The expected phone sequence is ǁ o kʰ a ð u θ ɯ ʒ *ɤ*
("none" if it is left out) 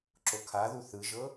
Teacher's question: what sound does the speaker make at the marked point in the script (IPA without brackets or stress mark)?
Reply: ɤ